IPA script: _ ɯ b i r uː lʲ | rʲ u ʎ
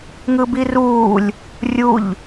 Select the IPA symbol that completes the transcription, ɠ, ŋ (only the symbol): ŋ